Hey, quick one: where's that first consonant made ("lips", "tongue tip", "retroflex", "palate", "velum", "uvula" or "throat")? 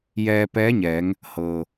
palate